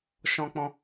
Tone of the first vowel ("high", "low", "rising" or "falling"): high